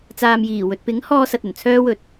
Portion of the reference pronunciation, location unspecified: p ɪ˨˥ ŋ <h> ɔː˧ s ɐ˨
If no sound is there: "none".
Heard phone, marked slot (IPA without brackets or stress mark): h